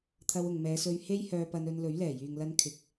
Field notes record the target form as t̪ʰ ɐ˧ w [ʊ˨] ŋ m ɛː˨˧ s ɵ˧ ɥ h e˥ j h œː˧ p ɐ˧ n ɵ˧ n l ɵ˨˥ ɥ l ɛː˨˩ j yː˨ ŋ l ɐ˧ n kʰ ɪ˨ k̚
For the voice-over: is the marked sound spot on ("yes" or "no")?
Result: yes